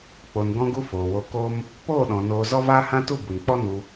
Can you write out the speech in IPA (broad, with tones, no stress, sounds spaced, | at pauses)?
k͡p o˨ n ɡ ɔ̃˧ ɡ u˧ f oː˨ w o˧ k o˦ m | p oː˦˨ ɗ ɔ̃˨ n oː˧ z ɔ˦ v aː˦ h ã˦ t u˦˨ b u˨ n k͡p ɔ˦ n u˧